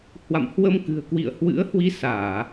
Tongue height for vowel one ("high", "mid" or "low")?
low